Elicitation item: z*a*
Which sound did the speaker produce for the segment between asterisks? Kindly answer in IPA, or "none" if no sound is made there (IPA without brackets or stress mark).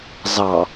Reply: ɑ